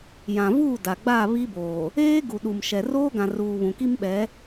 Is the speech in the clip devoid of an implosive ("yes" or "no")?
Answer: no